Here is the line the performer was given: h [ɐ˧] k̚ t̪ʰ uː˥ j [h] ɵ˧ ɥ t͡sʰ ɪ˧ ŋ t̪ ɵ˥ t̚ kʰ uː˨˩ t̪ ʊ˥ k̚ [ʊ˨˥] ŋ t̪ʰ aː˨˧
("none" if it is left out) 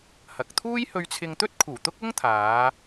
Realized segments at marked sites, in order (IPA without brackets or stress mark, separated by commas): ɐ˨, h, ʊ˥